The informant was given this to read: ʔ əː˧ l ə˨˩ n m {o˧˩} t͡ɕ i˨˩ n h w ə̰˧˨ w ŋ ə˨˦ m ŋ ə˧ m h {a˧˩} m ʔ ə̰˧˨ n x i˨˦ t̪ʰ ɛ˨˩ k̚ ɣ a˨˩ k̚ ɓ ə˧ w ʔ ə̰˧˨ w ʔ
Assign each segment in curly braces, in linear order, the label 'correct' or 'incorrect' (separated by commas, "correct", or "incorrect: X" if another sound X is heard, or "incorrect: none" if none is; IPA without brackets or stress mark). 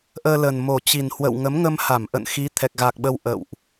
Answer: incorrect: o˨˩, correct